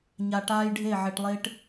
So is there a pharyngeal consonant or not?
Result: yes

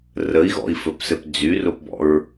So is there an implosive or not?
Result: no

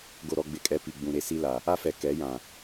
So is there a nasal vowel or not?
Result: yes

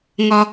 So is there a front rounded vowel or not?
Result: no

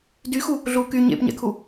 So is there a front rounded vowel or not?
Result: yes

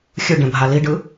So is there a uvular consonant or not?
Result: no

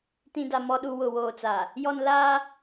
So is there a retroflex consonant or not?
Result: no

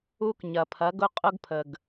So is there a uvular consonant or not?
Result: yes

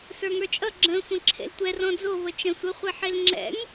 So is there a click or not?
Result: yes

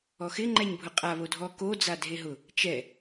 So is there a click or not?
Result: yes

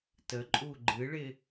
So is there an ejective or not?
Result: yes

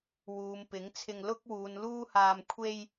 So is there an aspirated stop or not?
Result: yes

